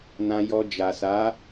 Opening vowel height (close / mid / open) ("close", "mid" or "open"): open